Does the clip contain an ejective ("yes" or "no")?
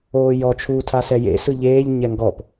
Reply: no